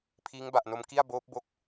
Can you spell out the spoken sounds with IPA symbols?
pʰ iː˦˥ ŋ b a˨˩ ʔ n o˧ m k i˥˩ a̯ b oː˦˥ p̚ b o˦˥ k̚

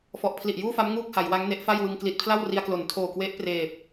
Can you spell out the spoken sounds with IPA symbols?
f ɔ˨˩ ʔ pʰ l i˨˩ ʔ j uː˥˩ f a˦˥ m ŋ uː˥˩ k̚ h a˩˦ j w a˦˥ ŋ n e˦˥ ʔ f a˥˩ j w ɯ˧ ŋ k l i˨˩ t̚ pʰ l a˥˩ w r i˧ a̯ k l o˩˦ n tʰ oː˨˩ k w e˦˥ ʔ p r eː˨˩ p̚

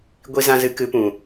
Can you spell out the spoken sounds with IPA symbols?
ɡʷ i˧ z ã˧ z ɨ˨˦ k ɨ˨˦ p ũ˨

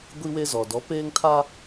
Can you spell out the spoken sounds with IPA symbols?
ɡʷ i˦ w e˦ z ɔ˨ d ɔ˨˦ p eː˦ ŋ tʰ a˦

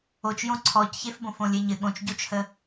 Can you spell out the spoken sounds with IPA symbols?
o t͡ʃ j õ ǀʰ ɔ c ç e f b õ f õ lʲ e ɲ ɘ ɠ õ t͡ʃ ɟ o t͡ʃ h ə

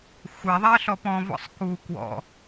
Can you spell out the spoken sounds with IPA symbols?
xʷ æ ðˤ æ ə̯ ɬ ɔ p ɔ̃ v ɔ̰ sˤ k u k w ɔ̰

